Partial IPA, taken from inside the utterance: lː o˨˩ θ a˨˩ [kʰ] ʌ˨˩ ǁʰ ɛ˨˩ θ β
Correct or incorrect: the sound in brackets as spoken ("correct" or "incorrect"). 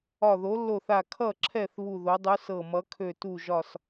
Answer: correct